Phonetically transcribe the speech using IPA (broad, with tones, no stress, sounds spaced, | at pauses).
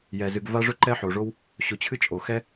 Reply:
j ɛ˩ z ɨ˨ ɡ v a˥ ʐ ɵ˥ ǃ ɛ˥ ħ o˩ ʐ o˥ w | ɕ ʊ˨ t͡ɕʰ ɨ˥ t͡ʃʼ o˩ x ɛ˥